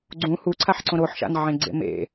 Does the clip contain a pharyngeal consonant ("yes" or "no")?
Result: yes